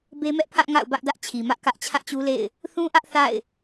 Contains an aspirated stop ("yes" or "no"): yes